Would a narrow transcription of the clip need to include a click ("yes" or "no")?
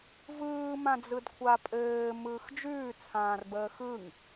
no